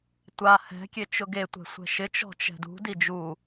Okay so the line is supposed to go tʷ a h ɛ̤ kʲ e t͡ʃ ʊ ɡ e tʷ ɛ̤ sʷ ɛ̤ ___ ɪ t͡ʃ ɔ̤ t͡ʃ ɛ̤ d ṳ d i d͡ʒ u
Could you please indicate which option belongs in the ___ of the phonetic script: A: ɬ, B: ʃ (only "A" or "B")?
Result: B